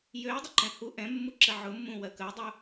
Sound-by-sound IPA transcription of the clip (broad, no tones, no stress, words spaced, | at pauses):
jøjdˤəǃɛ̃ hu ʔɛ̃mːuǁə ʕʊmːũwɜ kəjdˤu